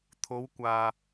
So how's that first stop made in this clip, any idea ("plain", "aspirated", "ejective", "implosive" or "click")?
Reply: aspirated